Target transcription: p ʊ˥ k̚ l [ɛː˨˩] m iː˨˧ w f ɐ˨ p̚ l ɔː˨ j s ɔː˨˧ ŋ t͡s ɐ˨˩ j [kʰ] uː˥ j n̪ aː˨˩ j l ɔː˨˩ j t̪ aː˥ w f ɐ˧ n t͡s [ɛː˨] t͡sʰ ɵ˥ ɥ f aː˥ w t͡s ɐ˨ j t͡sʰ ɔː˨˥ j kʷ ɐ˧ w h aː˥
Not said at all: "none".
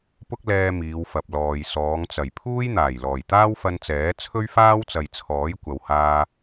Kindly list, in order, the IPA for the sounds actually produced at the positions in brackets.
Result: ɛː˧, pʰ, ɛː˨˥

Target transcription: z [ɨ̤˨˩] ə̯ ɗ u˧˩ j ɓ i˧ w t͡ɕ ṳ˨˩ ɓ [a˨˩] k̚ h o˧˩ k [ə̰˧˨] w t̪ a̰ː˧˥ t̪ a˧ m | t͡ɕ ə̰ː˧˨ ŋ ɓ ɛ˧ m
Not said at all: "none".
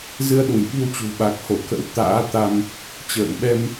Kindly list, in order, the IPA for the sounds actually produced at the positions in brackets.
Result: ɨ˧, a˨˩, ə̰˧˥

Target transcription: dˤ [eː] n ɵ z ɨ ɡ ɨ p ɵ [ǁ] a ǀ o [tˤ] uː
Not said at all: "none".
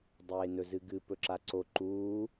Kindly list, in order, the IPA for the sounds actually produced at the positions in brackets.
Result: eː, ǁ, ǃ

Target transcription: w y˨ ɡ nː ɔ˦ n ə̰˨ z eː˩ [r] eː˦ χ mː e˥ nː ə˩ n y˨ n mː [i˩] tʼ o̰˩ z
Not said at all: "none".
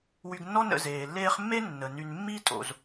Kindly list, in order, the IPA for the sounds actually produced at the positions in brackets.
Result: lː, i˦

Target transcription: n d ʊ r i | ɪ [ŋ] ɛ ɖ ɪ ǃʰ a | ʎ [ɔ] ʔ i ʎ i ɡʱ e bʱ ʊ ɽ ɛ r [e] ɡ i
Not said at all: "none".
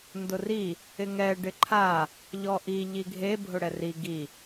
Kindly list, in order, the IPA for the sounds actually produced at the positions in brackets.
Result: ŋ, ɔ, i

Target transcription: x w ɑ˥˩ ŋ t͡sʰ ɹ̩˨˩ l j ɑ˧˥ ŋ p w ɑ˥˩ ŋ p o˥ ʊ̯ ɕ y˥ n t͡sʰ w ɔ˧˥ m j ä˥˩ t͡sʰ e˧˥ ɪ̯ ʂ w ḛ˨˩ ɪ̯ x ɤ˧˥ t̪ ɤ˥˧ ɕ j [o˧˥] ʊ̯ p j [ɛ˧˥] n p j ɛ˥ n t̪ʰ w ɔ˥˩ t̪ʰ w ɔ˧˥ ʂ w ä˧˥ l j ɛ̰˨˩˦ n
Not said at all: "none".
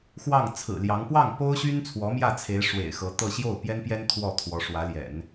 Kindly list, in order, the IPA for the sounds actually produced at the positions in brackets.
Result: o˥˩, ɛ˥

